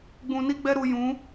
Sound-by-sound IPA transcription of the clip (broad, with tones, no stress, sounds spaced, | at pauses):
ɡ͡b ũ˧ n i˦ ɡ͡b ɛ˦ ɾ u˧ j ũ˨˦